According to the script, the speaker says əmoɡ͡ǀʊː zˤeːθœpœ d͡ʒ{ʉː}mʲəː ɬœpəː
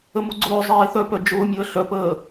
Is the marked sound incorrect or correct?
incorrect